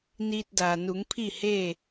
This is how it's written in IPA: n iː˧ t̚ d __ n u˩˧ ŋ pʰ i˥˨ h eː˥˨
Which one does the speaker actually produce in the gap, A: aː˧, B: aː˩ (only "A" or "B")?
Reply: B